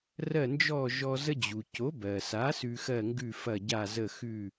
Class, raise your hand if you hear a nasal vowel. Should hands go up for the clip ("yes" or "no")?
no